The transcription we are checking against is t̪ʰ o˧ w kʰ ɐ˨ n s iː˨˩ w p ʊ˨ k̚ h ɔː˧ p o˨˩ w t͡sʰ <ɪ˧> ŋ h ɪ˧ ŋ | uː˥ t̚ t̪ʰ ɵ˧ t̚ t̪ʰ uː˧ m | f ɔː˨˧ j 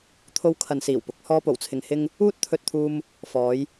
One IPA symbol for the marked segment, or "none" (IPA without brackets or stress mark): ɪ˨